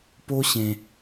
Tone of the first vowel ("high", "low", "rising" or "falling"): high